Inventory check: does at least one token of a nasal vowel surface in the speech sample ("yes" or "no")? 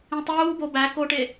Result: yes